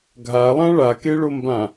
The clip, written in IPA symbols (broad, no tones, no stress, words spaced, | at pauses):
ɡʱalˠã ɭakeɭombã